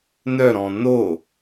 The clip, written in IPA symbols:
nœɾɔ̃ no

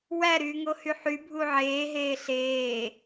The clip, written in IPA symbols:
wæɾyːŋohy ħybʱu ʕeːɦeː ɬeː

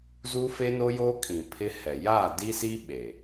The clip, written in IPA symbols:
zu˦fe˦no˦joː˦ kʼĩ˨pʰɪ˦ hɛ˨ jaː˦˨di˦si˦ ɓe˨

